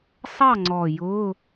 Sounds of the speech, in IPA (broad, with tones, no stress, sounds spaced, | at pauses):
sˤ ɑ˥˨ ŋ͡ǀ ɔ˨˩ j ʊ˧˥˧